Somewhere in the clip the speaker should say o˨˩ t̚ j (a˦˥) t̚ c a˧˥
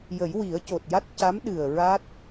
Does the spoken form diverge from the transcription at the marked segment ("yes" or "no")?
no